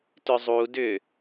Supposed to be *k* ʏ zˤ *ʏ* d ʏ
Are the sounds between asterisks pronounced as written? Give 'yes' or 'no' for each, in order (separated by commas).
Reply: no, no